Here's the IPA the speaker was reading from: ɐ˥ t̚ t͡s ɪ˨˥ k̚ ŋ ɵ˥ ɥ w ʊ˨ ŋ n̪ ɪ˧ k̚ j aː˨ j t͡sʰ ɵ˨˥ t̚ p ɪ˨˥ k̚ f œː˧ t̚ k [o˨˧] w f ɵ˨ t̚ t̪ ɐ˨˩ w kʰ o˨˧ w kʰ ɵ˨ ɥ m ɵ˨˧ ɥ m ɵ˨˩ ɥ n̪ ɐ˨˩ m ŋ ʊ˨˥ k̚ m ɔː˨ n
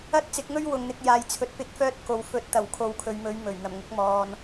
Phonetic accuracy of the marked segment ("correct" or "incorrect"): incorrect